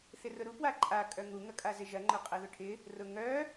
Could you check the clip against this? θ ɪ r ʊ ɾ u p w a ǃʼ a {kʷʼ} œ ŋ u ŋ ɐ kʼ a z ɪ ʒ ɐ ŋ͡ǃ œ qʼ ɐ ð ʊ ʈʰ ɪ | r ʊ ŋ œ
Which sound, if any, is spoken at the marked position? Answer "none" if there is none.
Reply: kʼ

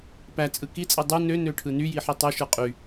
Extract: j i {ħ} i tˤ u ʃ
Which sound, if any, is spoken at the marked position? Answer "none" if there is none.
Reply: ħ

